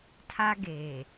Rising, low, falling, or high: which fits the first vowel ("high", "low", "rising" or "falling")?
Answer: high